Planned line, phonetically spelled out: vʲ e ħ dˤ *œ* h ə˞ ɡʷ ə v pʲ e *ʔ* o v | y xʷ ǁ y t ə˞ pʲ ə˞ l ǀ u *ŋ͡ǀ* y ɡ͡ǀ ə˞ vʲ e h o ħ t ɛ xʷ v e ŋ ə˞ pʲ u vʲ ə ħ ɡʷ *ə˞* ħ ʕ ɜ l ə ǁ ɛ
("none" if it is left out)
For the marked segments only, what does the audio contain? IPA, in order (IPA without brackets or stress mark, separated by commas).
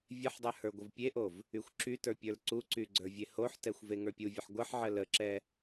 œ, ʔ, ǀ, ɜ